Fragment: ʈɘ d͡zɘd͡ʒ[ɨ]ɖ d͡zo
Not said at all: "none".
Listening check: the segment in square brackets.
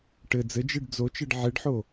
ɨ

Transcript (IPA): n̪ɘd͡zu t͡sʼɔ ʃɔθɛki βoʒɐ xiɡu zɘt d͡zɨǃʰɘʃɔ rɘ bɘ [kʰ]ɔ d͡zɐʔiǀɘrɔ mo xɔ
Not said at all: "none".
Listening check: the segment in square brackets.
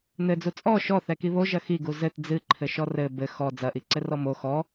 x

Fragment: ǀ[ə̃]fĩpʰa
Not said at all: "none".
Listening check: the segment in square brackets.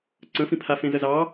ə̃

